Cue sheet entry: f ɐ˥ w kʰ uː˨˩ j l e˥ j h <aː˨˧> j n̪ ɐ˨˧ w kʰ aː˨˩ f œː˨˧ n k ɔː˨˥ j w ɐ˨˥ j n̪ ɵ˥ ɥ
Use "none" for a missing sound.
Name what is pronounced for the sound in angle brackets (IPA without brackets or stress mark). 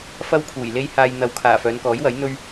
aː˧